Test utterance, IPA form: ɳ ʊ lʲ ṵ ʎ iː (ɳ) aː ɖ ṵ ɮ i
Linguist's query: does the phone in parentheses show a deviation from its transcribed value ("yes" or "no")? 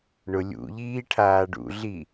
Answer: yes